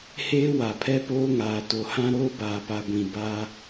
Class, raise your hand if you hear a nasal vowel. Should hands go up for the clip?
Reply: yes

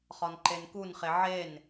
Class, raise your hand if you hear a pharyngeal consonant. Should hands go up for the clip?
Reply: yes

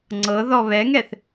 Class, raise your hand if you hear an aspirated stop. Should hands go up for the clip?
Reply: no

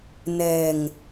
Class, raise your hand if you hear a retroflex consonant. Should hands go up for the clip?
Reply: no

